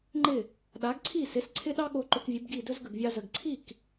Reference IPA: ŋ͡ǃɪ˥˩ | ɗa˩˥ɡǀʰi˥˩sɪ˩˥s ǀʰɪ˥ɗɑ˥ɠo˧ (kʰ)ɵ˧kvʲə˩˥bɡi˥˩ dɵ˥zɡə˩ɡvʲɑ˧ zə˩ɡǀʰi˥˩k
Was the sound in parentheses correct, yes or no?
no